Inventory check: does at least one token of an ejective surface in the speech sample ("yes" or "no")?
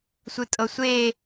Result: yes